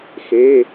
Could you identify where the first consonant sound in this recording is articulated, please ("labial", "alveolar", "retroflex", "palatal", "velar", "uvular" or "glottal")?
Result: velar